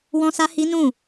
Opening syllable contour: high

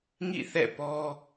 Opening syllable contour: falling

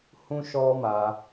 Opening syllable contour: high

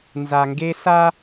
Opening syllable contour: low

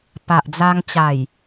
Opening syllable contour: low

